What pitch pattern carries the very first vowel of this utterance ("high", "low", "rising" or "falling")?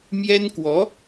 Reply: high